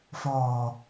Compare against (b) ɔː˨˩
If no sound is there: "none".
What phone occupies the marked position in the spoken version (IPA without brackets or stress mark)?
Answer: f